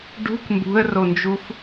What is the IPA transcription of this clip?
ɖṳk mbṳə̯rond͡ʒuf

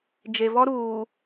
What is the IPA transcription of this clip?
d͡ʒe˨vɔ˦ ɾuː˨

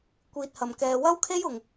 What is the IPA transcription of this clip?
kʷiː˧t̚hɐ˨˩mkɛː˧ wɐ˥wkʰe˥jʊ˨˩ŋ

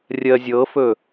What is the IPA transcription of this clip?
rʲɜzʲɤfɵ

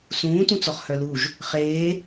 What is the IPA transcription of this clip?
sũːtũt͡sɔχ hœluʒ | χeː

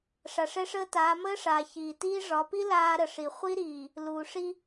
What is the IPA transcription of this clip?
ʂa˨ʂɛ˦ʂəː˦taː˨˦ məː˦ʂaː˨ çiː˨tiː˦ ʐɒ˨˦pi˦ laː˦ɾə˨ʂi˨ χʷi˦ɾiː˨ | luː˨ʂi˦

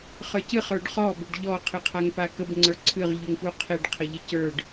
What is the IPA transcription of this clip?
χə˞cɨχ ə˞ɖχɔ bʏɖʎɔ qʰɨqʰaŋpakəb ŋ͡ǀə˞ǀʰɨʁ ʎuŋpuqʰeɖ qʰəʎecə˞ɖ

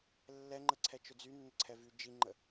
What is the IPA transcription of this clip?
lːɛŋ͡ǃə ǀʰɛt͡ʃɵd͡zy nːəǀʰɛvy d͡ʒiŋ͡ǃə

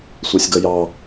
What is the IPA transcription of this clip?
sʷɑsʲɡʌjɑ

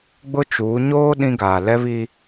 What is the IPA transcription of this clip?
ɡ͡bʊ˦ t͡ʃuː˨˦ ɲoː˦ ɗĩ˦ɡaː˨ lɛ˦βi˦

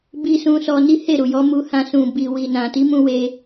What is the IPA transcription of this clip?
bi˦sũ˦ sɔ˧ ni˦ he˦˨ɾu˨jɔ˨˦ mu˧hã˧ sũ˨bi˨ wi˨nã˨ ti˨˦mũ˧ we˧

